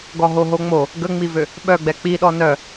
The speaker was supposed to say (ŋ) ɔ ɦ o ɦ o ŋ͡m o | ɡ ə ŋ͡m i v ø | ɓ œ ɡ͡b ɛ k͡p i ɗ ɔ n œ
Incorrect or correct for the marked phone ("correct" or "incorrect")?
incorrect